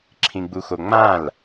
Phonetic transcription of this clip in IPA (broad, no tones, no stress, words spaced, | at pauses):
ǁʰĩɡ͡buxoŋ͡mãl